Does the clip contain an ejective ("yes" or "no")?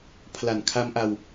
no